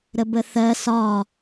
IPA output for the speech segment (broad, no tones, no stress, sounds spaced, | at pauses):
ɾ ə b ə θ ɜ s ɒ